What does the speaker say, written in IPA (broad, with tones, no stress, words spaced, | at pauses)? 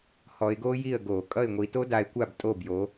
hɔ˨˦ɪ̯ɡo˥ji˥˩ə̯ɡo˧˩˧ kʼʌ˥˩ɪ̯ŋʷi˨˦to˥ da˨˦ɪ̯kʷa˥˩btʼo˥˩bjo˨˦